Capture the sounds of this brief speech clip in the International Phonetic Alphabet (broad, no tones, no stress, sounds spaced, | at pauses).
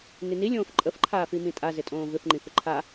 n i n i lʲ õː f ǃʼ ə f ǃʰ aː f i m ĩ tʼ a z ɪ tʼ õː v ɪ f ŋ͡ǃ ĩ f ɪ ǃʰ a